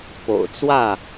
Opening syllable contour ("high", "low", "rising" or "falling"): low